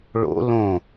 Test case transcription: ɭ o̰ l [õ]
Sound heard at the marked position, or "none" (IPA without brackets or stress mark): õ